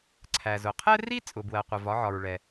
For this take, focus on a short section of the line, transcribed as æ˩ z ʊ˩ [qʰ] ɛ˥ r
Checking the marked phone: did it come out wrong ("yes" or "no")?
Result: no